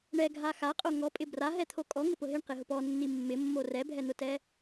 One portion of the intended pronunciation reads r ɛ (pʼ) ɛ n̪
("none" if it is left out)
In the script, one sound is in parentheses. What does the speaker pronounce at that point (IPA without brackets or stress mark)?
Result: bʱ